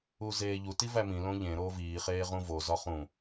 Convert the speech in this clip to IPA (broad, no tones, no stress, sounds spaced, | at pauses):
u z eː ʎ u t i v æ m ĩ l õ ʎ ẽ ɾ oː v iː χ eː ʁ ũ v o z ɒ χ ũ